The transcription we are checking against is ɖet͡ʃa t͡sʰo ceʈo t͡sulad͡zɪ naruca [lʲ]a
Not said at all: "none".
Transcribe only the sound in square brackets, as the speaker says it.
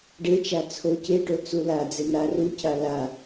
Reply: l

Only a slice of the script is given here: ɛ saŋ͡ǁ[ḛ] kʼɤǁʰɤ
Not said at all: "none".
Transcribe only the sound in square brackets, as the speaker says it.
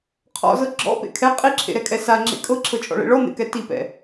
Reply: ḛ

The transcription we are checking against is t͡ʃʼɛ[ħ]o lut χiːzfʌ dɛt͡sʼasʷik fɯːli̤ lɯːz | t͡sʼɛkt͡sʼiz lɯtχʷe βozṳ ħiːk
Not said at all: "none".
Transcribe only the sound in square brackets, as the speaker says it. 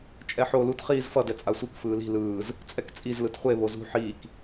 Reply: ħ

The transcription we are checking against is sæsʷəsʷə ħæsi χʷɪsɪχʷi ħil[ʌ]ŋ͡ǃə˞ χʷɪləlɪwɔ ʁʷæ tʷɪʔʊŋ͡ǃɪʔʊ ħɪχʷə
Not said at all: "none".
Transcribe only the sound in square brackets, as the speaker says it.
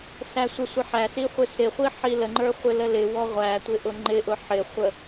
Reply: ə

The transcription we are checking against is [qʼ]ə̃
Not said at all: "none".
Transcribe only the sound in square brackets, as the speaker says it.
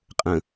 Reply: qʼ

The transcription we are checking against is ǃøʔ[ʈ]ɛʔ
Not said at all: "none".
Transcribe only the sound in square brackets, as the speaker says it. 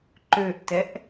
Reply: t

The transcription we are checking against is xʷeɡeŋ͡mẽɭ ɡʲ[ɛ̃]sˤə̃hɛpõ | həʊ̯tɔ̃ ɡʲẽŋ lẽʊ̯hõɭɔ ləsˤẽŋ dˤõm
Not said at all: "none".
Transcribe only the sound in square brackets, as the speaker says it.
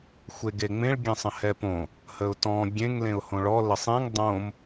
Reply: ɛ̃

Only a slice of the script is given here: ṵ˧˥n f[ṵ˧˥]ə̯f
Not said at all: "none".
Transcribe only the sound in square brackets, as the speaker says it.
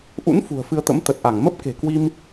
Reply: ṳ˨˩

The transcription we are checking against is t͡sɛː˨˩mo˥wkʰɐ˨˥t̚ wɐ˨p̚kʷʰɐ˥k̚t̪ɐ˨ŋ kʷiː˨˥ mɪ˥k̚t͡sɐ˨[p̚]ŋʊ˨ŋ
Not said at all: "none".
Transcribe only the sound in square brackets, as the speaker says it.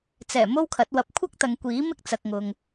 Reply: k̚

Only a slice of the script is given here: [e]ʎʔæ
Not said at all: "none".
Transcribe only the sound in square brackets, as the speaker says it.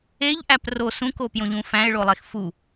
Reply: e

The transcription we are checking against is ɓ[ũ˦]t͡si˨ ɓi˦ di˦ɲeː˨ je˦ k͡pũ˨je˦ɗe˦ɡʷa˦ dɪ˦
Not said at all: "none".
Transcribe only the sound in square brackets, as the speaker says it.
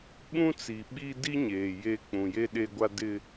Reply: ũ˦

